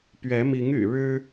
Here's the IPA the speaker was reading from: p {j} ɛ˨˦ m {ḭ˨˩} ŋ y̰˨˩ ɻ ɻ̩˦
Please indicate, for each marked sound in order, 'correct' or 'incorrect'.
incorrect: ɥ, incorrect: i˨˦

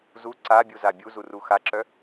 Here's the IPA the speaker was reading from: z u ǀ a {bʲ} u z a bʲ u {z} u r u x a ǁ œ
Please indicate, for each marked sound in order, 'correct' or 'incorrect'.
correct, correct

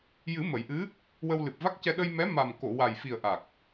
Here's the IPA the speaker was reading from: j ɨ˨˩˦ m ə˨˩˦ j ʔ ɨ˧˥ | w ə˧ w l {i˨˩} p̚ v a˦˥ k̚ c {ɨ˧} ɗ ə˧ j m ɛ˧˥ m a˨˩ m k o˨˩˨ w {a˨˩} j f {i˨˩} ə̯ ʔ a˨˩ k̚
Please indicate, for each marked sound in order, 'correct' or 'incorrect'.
incorrect: ɨ˨˩, incorrect: ɛ˧, correct, correct

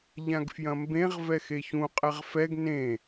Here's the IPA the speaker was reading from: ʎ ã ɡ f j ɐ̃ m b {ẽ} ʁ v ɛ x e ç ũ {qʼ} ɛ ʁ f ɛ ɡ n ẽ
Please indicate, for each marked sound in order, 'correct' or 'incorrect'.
correct, correct

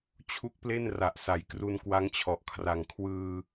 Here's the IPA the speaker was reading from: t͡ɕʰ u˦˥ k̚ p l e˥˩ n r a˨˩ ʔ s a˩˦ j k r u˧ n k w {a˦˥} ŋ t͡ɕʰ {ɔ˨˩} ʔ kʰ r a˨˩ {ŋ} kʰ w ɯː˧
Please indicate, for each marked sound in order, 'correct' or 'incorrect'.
correct, correct, correct

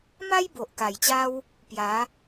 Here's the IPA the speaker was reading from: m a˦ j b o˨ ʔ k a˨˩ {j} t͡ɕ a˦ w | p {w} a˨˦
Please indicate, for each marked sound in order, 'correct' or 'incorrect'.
correct, incorrect: j

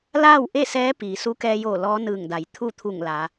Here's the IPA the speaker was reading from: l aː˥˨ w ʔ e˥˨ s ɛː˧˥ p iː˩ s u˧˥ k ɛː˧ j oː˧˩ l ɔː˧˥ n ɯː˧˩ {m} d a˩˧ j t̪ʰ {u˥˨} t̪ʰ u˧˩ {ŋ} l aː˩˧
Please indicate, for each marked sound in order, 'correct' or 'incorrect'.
incorrect: ŋ, correct, correct

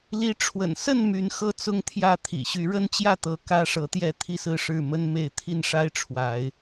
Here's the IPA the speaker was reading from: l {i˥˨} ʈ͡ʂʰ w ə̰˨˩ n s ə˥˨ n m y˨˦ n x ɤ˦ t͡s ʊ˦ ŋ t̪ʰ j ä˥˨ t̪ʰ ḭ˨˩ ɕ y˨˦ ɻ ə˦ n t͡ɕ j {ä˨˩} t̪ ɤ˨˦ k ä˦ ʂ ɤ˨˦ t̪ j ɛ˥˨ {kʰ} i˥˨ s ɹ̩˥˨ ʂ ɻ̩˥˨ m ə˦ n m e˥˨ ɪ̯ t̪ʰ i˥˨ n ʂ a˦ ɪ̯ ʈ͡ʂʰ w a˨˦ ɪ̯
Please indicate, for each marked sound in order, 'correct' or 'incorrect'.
incorrect: i˨˦, incorrect: ä˥˨, incorrect: t̪ʰ

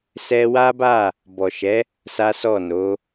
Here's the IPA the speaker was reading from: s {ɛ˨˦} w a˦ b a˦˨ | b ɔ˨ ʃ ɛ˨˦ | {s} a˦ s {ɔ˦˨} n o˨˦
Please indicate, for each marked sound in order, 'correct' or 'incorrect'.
incorrect: ɛ˦, correct, correct

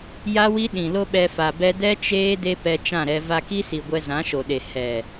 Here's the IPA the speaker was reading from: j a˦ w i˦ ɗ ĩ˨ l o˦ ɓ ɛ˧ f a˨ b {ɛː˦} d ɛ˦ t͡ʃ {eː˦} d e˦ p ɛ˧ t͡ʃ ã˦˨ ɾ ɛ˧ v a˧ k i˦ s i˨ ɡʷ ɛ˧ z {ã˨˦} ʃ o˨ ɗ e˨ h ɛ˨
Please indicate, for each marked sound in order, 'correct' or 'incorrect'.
incorrect: ɛ˦, correct, correct

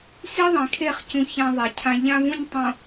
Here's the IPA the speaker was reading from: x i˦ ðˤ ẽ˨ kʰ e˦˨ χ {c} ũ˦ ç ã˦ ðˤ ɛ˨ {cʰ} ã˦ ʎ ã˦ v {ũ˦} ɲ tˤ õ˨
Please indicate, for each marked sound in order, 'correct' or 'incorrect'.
correct, correct, correct

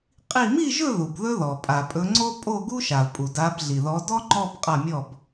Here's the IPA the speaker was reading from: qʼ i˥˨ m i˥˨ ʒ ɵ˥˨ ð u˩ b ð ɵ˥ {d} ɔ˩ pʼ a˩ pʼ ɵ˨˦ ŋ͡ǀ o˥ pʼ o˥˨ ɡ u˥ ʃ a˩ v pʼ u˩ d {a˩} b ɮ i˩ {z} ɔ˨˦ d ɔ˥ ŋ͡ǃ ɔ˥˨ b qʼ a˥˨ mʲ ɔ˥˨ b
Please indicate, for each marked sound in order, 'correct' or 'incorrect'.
incorrect: ð, incorrect: a˨˦, incorrect: ð

